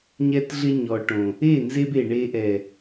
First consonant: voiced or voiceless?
voiced